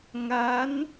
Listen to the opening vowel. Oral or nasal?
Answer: oral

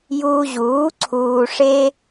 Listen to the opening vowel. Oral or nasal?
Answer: oral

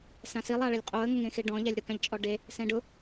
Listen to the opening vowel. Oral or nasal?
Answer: nasal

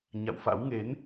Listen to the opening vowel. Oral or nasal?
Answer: oral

